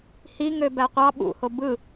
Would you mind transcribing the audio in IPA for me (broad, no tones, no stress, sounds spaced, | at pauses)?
h i ŋ ø b æ qʷ ɑ ɓ ṵ h o b ɯ